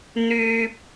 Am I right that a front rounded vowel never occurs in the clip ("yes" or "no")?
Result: no